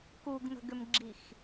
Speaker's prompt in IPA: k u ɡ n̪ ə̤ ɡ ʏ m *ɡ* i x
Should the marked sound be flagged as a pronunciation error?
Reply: yes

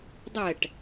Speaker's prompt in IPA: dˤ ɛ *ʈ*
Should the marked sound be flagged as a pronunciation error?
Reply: no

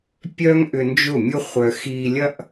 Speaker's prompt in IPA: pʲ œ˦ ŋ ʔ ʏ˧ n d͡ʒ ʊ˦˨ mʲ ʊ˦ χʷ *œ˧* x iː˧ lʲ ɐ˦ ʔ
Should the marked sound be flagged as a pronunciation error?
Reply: no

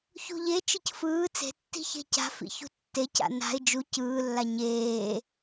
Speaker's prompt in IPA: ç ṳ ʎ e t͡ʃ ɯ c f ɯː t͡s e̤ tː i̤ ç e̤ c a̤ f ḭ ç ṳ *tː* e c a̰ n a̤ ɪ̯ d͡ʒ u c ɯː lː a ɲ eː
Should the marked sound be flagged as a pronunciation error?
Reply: no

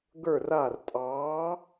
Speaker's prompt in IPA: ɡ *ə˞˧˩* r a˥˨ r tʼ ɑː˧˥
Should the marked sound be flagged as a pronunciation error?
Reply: yes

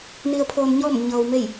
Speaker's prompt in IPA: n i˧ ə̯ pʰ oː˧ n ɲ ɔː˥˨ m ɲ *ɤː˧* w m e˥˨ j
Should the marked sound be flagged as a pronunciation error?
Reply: no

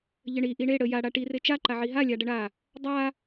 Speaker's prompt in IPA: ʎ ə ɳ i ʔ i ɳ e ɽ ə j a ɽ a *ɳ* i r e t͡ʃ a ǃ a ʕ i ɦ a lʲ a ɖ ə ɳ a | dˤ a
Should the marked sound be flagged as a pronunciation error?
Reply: yes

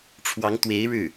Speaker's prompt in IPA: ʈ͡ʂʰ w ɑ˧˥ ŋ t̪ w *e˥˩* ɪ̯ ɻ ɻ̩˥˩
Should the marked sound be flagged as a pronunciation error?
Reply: yes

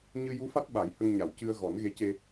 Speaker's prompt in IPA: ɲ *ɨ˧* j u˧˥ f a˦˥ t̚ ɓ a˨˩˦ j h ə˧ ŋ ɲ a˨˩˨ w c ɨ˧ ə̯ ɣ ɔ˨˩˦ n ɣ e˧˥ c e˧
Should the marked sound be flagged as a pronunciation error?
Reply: no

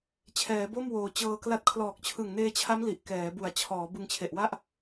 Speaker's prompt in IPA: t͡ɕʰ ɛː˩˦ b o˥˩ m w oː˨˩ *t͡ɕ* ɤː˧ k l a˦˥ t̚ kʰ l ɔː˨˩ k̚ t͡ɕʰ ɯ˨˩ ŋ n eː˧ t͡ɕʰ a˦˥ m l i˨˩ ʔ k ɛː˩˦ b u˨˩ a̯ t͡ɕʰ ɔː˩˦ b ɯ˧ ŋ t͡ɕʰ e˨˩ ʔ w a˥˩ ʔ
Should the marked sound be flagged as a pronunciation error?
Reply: no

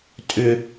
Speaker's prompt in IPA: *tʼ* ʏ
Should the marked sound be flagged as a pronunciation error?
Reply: no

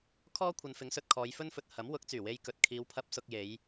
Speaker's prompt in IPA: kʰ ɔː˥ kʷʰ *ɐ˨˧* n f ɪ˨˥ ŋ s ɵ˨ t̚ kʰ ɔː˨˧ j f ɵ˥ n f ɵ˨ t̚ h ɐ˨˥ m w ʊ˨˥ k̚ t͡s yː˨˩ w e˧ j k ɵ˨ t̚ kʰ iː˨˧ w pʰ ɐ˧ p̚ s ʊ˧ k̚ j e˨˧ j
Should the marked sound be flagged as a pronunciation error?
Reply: no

